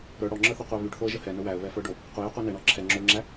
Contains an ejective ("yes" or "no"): no